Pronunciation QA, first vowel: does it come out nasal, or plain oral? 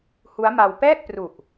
oral